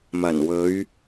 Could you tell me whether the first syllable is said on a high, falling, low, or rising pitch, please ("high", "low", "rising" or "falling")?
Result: low